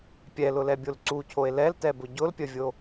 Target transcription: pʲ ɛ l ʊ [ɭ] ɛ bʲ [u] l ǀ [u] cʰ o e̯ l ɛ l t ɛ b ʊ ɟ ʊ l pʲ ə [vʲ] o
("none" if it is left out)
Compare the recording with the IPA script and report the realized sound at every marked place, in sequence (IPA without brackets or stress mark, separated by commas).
l, o, u, vʲ